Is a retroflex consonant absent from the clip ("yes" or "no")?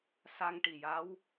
no